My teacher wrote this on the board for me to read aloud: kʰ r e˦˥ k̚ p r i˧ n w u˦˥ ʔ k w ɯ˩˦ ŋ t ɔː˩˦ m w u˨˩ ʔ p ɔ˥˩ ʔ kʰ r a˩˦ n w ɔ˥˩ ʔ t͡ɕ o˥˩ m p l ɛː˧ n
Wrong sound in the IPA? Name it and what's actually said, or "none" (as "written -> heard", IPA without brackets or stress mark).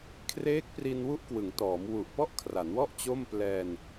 e˦˥ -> eː˦˥